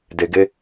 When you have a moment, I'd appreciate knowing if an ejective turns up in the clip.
no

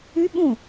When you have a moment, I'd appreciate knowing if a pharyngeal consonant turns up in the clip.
no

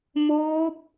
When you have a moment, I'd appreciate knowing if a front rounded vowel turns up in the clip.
no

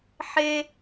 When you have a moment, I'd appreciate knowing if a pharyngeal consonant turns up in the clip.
yes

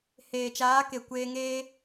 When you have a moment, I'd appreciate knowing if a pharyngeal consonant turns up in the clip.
no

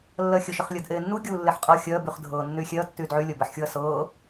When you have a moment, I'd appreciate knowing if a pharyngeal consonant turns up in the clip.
yes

